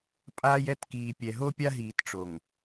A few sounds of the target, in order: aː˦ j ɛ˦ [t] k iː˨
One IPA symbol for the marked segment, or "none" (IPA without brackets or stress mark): t